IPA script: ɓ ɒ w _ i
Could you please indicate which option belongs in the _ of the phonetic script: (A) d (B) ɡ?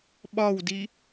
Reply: A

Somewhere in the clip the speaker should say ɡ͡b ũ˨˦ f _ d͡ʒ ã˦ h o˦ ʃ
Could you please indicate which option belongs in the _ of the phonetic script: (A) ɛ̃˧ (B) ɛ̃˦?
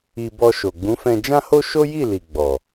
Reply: A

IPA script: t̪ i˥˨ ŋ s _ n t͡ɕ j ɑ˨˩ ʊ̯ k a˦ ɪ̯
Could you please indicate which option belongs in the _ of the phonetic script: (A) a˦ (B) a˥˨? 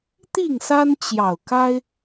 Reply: A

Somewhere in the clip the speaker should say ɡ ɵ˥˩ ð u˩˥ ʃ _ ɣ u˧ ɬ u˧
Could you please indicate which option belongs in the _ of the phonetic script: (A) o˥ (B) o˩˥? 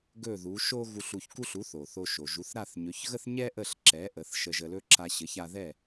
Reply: A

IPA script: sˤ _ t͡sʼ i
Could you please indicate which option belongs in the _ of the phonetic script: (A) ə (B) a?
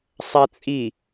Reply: B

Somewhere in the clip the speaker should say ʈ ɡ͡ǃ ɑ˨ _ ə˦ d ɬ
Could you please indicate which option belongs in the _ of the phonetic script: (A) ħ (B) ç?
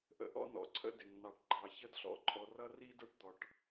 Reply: B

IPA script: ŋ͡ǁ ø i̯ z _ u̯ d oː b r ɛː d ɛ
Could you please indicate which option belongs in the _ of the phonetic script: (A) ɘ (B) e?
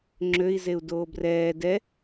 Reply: B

